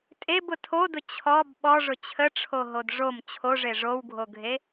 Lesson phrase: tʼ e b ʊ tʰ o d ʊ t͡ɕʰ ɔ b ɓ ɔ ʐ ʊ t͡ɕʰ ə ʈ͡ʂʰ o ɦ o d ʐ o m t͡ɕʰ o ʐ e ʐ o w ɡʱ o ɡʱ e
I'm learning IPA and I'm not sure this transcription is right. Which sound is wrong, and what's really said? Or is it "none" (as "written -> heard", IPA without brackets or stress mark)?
none